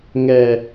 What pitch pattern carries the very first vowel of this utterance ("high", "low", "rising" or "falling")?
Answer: high